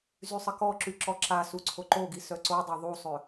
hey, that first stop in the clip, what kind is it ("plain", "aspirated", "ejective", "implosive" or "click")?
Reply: plain